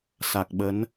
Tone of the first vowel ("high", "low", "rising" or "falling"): low